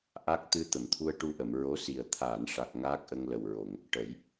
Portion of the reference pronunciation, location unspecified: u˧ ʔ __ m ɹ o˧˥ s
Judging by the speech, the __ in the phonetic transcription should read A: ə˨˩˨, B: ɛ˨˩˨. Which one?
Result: A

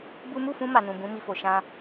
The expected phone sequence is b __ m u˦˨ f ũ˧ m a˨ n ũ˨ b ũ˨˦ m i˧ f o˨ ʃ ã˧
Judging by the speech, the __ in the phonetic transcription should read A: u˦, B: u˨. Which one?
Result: A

